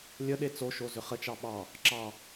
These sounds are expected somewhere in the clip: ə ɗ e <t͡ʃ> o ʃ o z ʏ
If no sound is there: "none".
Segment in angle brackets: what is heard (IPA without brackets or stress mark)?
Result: t͡s